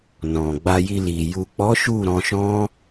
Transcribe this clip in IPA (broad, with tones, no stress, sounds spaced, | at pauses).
n ɔ̃˨ ɡ͡b a˧ j i˧ l i˨ j u˨ k͡p ɔ˨˦ ʃ u˦˨ ɾ ɔ̃˧ ʃ ɔ̃˦